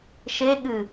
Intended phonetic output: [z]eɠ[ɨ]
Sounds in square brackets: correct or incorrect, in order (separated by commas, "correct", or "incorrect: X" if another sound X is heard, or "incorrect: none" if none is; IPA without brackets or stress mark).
incorrect: ʃ, correct